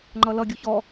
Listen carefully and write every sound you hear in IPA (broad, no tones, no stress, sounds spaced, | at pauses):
ŋ͡ǃ ʌ l ʌ ɡʲ u ç ɔ